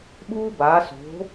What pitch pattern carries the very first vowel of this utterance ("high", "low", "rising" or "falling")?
high